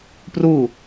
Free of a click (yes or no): yes